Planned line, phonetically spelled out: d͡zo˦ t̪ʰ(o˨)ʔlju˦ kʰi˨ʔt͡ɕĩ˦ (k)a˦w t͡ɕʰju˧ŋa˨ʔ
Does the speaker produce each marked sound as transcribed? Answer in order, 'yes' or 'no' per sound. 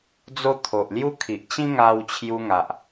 yes, no

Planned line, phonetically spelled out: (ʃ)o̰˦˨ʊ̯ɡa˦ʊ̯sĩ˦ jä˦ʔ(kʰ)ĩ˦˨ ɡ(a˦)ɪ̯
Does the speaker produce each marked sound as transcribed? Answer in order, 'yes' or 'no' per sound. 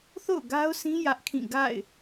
no, yes, no

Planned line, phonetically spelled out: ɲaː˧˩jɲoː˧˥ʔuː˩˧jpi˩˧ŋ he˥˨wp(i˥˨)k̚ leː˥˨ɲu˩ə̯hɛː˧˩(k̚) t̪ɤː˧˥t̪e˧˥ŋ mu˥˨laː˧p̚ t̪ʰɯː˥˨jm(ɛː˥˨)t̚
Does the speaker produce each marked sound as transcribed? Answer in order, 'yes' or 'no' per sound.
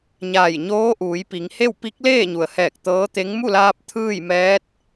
no, yes, no

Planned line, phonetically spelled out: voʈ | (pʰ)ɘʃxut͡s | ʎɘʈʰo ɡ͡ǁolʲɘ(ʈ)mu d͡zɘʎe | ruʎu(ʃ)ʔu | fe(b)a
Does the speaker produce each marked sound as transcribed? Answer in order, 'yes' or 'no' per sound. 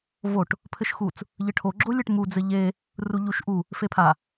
yes, yes, yes, no

